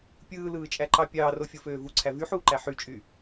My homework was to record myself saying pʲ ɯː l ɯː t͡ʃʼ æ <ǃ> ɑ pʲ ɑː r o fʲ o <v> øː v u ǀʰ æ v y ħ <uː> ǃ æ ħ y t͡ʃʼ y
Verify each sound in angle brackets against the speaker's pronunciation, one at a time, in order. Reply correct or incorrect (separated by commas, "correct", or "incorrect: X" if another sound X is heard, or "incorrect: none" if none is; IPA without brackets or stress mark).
correct, incorrect: f, correct